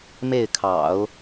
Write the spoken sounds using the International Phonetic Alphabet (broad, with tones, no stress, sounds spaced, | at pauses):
m e˥˩ ɪ̯ kʰ ɑ̰˨˩˦ ʊ̯